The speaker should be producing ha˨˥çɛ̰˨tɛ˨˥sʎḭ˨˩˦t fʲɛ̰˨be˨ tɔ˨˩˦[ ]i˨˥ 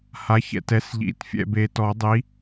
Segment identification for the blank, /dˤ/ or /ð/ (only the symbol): dˤ